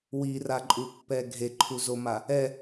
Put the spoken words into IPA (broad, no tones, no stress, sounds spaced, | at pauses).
w i r a ǃʼ u pː ɛ ɡʱ e ǃʰ u z o m a | ɛ